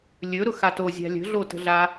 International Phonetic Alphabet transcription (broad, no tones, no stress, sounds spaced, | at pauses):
lʲ ɵ ɾ ʊ x a t o zʲ a̤ lʲ ə̤ ɮ o t ə̤ ɮ a